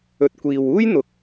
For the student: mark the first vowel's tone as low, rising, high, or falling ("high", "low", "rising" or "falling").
low